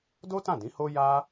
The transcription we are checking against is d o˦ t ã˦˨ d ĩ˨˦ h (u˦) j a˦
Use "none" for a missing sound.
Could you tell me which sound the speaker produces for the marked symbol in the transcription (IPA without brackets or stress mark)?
o˦